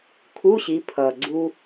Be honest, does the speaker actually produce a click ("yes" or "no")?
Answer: yes